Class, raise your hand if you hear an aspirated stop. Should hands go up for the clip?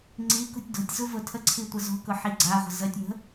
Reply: yes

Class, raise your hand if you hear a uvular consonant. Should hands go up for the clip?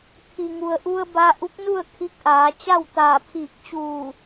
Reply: no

